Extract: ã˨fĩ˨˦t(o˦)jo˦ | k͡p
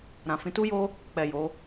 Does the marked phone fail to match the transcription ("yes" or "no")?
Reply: yes